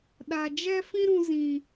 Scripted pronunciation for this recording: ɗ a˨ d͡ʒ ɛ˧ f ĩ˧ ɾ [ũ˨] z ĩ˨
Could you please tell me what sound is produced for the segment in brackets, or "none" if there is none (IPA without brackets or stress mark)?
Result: ũ˨